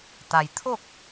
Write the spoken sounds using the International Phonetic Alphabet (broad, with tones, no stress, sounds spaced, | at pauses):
t̪ a˩ j t̪ʰ o˥˨ k̚